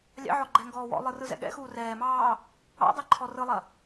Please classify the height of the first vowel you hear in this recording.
low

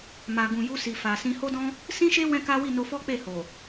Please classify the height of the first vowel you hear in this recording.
low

